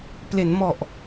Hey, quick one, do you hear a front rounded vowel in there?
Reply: no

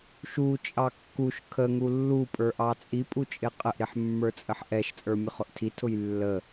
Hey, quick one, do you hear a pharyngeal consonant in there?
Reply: yes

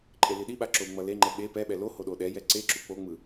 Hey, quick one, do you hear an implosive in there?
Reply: yes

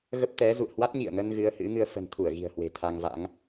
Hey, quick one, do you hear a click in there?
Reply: no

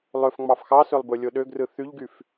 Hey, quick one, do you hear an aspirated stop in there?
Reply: no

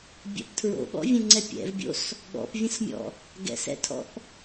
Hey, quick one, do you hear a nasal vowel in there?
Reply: yes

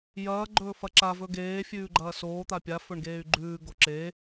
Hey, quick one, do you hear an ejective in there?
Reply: no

